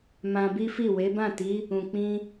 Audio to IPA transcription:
m ã˧ b i˦ f i˦˨ w e˨˦ b ã˦˨ t i˨˦ | ũ˨ k͡p ĩ˧

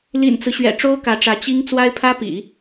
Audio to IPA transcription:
l ḭ˨˩ n t͡s ɹ̩˦ ɕ ɥ ɛ̰˨˩ ʈ͡ʂ o˥ ʊ̯ k ä˧˥ ʈ͡ʂ ä˧˥ t͡ɕ i˥ ŋ t͡s w a˥ ɪ̯ pʰ ä˥ p ḭ˨˩˦

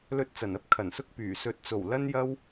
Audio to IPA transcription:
l ɵ˧ t̚ t͡s ɐ˨˩ n ɐ˥ p̚ kʰ ɐ˨˩ n s ʊ˧ k̚ p yː˨˩ s ɵ˨˥ t̚ t͡s o˨˩ w l ɐ˥ n j ɐ˥ w

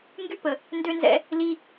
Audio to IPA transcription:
ŋ ɡ y˦ p ə˨ | n d ø˦ n z ɛ̰˦ | l i˦

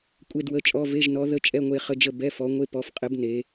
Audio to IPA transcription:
kʷʼ e˧˥˧ d w ə˧˥˧ t͡ʃʼ ɔ˧˥˧ v e˧˥˧ ʒ n ɔ˨˦ ð ə˧˥˧ t͡ʃʼ ɛ˧˥˧ ŋʷ e˦˨ χ ə˧˥˧ d͡ʒ ə˦˨ b ɛ˧˥˧ f ɔ˨˦ ŋʷ e˧˥˧ p ɔ˨˦ f qʼ ɘ˨˦ b n e˨˦

